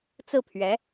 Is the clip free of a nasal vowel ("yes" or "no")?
yes